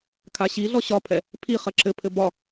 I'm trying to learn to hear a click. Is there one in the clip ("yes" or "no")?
yes